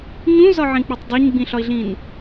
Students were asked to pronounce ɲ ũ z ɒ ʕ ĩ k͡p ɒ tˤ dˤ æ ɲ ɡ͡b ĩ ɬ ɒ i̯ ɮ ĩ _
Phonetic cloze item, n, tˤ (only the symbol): n